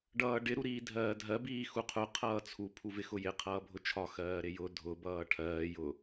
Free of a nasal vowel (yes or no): yes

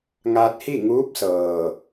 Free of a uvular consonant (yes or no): yes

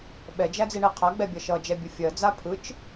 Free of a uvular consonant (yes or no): no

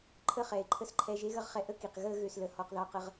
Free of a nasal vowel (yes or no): yes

